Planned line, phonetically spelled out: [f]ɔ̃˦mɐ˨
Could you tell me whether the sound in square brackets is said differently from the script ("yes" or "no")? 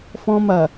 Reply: no